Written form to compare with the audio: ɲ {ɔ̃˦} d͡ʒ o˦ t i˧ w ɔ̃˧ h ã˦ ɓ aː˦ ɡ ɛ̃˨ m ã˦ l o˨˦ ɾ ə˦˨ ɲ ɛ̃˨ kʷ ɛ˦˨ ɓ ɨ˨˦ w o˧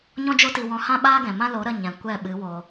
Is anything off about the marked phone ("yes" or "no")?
no